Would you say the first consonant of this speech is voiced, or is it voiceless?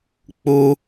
voiceless